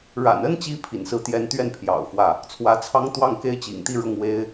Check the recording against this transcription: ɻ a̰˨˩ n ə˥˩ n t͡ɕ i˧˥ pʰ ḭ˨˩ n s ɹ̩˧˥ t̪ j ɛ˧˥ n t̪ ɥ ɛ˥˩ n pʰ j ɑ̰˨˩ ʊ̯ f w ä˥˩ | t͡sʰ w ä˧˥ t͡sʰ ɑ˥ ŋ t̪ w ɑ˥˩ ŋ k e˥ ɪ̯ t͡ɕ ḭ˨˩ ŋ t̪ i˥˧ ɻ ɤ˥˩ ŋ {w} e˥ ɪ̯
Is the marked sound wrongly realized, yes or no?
no